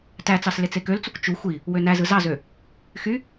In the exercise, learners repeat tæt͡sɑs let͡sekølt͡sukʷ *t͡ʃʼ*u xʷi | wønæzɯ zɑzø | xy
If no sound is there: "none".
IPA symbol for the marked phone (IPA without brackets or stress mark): t͡ʃ